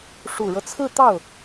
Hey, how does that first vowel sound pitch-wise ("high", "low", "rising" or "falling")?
low